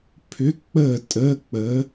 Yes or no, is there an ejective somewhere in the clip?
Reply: yes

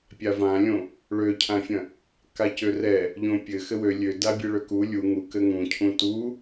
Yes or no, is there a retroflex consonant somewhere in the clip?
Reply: yes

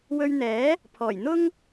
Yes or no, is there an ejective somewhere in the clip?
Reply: no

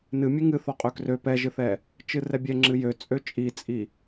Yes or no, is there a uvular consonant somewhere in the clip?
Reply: yes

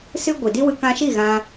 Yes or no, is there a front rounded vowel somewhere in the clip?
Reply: no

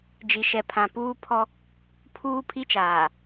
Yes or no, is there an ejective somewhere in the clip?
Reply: no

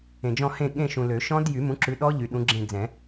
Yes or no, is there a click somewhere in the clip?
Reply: yes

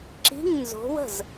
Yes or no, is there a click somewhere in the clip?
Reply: yes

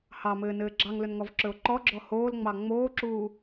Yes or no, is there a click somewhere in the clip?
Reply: yes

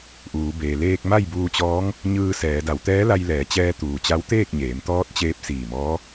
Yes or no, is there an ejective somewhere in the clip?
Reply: no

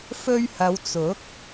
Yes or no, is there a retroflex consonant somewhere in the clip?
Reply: no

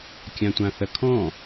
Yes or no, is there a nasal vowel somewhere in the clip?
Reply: yes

